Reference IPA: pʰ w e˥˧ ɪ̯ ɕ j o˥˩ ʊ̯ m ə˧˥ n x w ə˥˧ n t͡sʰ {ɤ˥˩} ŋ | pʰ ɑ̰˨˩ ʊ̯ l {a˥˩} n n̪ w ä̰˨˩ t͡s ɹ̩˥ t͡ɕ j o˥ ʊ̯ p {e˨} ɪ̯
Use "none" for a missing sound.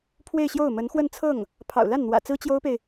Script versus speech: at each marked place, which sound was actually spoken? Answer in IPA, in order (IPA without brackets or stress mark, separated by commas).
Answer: ɤ˥˩, a˥˩, e˨